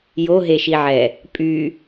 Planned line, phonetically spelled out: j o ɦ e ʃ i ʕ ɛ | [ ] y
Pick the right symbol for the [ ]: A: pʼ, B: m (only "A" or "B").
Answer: A